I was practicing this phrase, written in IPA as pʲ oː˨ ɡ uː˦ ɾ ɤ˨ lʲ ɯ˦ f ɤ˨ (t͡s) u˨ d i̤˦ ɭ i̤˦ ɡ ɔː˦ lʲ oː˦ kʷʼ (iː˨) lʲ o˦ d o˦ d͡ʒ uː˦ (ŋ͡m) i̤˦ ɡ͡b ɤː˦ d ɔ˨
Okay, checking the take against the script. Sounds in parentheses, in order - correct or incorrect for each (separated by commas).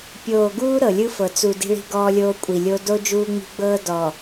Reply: correct, incorrect, correct